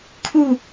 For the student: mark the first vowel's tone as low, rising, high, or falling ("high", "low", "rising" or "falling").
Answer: falling